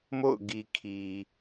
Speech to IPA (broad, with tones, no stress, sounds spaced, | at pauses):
m o̰˦˨ ʊ̯ ɡ i˨ kʰ i˨